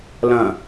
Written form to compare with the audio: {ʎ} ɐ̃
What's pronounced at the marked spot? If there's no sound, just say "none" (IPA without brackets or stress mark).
l